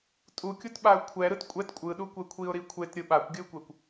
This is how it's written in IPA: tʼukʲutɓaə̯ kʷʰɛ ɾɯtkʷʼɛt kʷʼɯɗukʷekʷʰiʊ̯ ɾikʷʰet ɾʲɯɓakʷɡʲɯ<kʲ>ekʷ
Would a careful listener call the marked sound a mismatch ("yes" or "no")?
yes